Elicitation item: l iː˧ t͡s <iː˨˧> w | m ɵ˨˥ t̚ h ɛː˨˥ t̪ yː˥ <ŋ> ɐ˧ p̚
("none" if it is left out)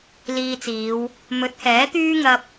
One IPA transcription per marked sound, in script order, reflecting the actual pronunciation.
iː˨˧, ŋ

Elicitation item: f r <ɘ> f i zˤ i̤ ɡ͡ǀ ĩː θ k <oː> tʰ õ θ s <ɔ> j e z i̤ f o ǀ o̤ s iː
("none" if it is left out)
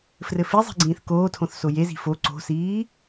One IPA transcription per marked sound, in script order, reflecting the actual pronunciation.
ɘ, oː, o

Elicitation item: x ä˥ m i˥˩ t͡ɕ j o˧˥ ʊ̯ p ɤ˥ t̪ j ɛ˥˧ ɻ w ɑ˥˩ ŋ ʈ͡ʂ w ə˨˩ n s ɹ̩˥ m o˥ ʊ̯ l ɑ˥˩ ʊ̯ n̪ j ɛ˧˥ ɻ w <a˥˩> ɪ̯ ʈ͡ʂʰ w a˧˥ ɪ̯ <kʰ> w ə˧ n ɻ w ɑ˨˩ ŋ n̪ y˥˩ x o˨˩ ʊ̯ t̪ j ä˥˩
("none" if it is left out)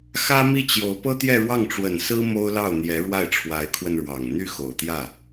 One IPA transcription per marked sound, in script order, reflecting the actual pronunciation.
a˥˩, kʰ

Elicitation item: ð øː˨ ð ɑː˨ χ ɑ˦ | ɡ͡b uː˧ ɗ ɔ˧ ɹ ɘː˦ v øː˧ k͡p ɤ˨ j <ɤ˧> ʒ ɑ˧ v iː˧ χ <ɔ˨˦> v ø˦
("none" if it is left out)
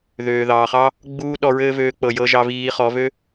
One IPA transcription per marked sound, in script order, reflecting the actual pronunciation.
ɤ˧, ɔ˨˦

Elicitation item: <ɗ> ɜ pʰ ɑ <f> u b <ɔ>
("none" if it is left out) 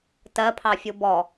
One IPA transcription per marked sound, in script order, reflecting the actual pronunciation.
t, fʲ, ɔ

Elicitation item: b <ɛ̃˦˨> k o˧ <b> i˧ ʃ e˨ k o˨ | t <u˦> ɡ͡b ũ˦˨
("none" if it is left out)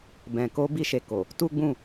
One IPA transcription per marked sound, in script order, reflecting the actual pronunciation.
ɛ̃˨, b, u˦

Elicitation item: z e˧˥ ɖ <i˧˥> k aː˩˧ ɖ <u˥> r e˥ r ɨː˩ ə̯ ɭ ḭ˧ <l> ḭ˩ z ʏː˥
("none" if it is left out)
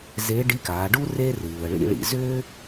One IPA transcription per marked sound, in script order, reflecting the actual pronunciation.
i˧˥, u˥, ɭ

